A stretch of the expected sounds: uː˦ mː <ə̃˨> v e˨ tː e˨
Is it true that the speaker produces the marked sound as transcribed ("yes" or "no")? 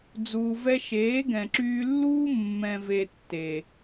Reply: no